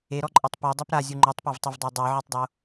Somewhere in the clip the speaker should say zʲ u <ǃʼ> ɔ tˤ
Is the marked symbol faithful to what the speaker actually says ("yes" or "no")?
no